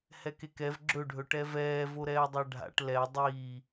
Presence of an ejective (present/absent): absent